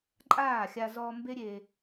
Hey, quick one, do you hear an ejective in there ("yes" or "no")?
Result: yes